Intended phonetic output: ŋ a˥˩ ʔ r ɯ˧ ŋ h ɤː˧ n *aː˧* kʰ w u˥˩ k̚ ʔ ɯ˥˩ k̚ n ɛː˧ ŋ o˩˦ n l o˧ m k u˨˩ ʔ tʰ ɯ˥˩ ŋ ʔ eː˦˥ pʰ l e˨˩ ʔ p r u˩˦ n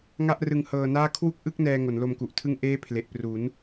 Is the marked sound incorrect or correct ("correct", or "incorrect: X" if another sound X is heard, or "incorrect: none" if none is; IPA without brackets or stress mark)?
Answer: incorrect: aː˥˩